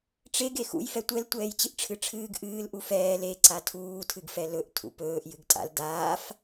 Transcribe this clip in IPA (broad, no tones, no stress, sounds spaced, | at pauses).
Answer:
ʈ͡ʂ e ɡ e x ṵ j f ɛ tʷ ɛ l tʷ ɛː j t͡ɕ ɨ ʔ ʈ͡ʂʰ ɨ ʈ͡ʂʰ ɨː ɡ ʔ ɨː l ʔ u f ɛː l e ǀ a tʰ uː tʰ ɨ ɡ f ɛ l ɵ ʔ tʰ ṵ p ɵː ʔ j ɨ ɡ tʼ a̰ l d aː f